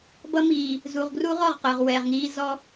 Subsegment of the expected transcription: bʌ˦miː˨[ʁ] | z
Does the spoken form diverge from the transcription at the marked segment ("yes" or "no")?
yes